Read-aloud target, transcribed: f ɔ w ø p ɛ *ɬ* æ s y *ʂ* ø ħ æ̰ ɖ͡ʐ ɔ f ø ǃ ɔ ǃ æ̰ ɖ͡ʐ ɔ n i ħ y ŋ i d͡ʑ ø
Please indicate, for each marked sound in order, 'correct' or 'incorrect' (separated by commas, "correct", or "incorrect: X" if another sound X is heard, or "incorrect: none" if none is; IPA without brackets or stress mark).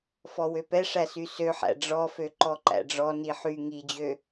incorrect: ʂ, incorrect: s